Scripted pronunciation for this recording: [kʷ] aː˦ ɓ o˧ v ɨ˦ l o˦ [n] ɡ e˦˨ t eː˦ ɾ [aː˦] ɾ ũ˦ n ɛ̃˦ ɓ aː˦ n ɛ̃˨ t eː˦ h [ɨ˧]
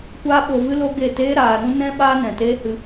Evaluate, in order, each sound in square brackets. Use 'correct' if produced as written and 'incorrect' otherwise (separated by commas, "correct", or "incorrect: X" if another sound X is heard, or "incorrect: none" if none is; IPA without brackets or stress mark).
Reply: correct, incorrect: none, incorrect: aː˧, correct